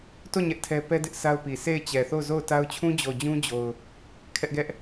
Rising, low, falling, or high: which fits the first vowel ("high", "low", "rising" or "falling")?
falling